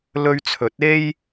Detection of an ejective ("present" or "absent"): absent